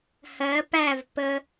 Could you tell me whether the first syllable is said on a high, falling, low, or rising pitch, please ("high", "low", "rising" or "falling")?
rising